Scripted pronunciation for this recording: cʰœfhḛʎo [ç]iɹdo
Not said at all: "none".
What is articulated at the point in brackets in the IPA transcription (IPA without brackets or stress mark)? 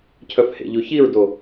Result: ç